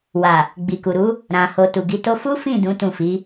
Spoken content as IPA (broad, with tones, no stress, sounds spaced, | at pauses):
w a˨ | ɡ͡b i˨ k u˨ ɾ u˨˦ | ɾ ã˨ h o˨ t u˨ ɡ i˨˦ t o˦ f u˦ f ĩ˦˨ d ũ˨˦ t ũ˦˨ f i˨˦